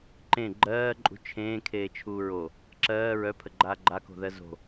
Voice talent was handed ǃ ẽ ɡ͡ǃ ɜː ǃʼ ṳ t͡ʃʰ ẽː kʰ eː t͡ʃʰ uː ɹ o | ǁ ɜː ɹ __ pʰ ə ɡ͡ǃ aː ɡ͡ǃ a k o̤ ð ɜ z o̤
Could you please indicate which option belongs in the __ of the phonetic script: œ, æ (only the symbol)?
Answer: œ